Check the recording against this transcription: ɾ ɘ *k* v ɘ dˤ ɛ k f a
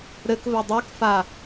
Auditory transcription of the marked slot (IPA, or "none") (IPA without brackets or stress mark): k